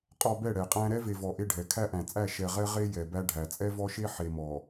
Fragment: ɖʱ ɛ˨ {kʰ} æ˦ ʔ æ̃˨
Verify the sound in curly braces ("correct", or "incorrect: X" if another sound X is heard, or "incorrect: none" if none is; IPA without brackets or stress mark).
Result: correct